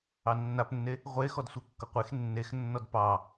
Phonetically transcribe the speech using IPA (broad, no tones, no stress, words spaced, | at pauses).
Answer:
ɑnːapnːe | ʁʷe xɔdsʷekːʌqʷex nːex nːɔdpɑ